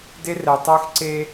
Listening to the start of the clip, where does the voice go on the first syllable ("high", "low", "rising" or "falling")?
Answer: high